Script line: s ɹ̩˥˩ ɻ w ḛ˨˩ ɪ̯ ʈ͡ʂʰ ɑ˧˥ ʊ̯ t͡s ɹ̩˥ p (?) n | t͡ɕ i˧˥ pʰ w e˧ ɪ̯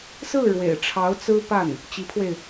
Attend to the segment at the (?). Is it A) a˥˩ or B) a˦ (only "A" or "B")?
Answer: A